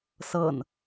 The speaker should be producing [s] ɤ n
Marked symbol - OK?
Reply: yes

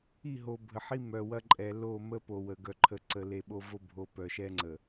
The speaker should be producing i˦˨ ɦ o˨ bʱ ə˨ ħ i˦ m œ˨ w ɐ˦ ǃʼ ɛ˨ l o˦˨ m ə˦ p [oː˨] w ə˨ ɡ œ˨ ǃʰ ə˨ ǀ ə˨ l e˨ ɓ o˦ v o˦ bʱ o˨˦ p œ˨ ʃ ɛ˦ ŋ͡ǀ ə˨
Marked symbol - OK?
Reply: no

